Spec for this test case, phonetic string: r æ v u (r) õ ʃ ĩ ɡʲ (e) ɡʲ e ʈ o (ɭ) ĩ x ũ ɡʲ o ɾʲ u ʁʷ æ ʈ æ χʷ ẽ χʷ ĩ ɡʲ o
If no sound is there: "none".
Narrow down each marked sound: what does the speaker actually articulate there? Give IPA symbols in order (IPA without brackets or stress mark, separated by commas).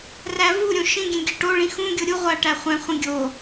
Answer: ɾʲ, ẽ, ɭ